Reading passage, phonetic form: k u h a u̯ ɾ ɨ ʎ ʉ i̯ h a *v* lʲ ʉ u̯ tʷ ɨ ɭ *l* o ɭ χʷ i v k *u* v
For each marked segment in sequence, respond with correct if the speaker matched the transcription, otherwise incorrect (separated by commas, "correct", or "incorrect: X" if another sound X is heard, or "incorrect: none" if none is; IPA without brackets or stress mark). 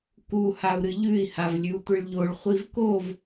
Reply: correct, incorrect: ʎ, incorrect: o